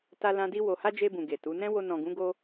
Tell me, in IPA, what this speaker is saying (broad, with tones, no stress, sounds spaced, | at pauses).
t a˧ l ã˧ d i˧ w o˨ h a˧ d͡ʒ e˧ b ũ˨ ɡ e˨ t u˨˦ n ɛ̃˦ w o˧ n ɔ̃˨ ɡ ũ˨˦ ɡ o˧